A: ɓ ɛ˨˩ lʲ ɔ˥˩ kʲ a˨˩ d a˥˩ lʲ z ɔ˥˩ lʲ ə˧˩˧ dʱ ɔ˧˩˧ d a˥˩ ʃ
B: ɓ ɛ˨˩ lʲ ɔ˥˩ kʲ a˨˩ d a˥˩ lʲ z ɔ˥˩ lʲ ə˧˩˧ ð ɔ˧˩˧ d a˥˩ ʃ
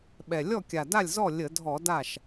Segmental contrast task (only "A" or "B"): A